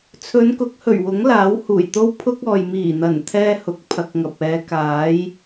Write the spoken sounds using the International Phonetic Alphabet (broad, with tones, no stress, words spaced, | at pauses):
t͡sʰɵ˨˧nkʊ˨˥k̚ hɵ˨˩ɥwʊ˨˥ŋlaː˨˥w huː˨˩jt̪o˥wpʰʊ˥k̚ɔː˨j miː˨˩n̪ɐ˨˩n t̪ʰɛː˥hʊ˨k̚ pʰɐ˧k̚ŋɐ˨p̚ ɛː˨˧kaː˨˥j